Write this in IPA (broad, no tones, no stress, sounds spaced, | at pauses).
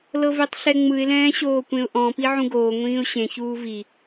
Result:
l ɤ v e tˤ ɬ ɛ ŋ͡m ɯ ɪ̯ l ɛ̃ː ɕ oː kʷ ẽ ʊ̯ ʔ ɔ̃ p i ʕ ũ ɡ oː ŋʷ ĩː ʊ̯ ɕ ẽ ç uː v i